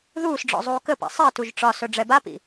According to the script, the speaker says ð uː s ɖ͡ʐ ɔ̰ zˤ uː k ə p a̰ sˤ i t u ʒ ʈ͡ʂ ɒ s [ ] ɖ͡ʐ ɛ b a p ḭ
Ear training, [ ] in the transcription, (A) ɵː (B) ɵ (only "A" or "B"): B